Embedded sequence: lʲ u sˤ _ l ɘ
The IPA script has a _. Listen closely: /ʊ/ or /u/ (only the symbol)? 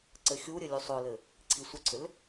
ʊ